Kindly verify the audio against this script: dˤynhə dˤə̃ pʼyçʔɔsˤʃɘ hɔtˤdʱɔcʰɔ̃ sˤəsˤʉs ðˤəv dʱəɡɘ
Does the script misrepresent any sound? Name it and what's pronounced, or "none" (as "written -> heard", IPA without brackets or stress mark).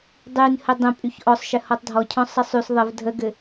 none